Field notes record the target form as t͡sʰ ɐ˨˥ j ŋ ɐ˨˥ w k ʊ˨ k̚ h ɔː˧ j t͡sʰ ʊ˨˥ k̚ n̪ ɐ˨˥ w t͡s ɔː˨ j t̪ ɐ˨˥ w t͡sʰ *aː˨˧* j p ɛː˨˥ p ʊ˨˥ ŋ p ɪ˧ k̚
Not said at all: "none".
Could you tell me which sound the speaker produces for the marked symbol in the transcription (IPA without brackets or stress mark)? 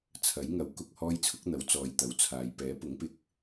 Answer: aː˨˧